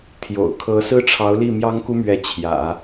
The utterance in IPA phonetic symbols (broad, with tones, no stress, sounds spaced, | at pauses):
t̪ʰ j o̰˨˩ ʊ̯ kʰ ɤ˧˥ s ɹ̩˥ ʈ͡ʂʰ ɑ˧˥ ʊ̯ l i˥˩ m j ɑ˥ ŋ k u˥ m ɥ ɛ˧˥ t͡ɕʰ j ä̰˨˩˦